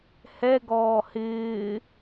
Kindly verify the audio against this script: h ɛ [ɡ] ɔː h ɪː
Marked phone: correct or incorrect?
correct